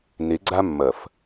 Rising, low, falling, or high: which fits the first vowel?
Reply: rising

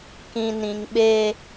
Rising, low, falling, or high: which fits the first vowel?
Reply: low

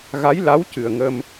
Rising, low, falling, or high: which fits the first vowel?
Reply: rising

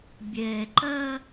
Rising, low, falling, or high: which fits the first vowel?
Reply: low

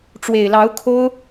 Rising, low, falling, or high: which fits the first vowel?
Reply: low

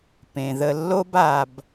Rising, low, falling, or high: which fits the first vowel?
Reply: low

